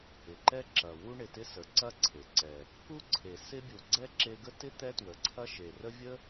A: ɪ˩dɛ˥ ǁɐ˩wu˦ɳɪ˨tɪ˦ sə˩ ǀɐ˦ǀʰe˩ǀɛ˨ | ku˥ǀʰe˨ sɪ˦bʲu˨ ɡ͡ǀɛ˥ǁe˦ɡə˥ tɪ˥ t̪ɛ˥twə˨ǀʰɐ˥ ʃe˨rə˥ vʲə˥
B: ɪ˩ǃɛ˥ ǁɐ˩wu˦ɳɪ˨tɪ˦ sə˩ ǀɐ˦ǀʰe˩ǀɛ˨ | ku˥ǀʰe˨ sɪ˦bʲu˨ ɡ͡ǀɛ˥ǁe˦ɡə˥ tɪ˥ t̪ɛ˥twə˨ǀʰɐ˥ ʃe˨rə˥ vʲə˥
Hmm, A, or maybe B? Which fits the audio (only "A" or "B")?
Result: B